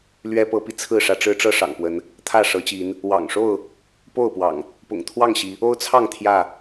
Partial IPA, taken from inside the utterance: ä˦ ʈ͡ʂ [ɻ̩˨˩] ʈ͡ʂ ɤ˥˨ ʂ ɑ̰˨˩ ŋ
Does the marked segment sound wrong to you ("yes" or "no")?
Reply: yes